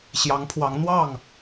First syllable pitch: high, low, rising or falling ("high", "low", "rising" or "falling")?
rising